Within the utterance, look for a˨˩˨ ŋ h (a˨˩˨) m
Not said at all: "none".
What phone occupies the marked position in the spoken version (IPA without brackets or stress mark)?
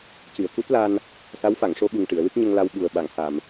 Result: a˨˩˨